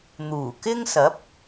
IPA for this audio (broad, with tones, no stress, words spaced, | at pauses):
n̪uː˨˩kɪ˥ŋsɐ˨˥p̚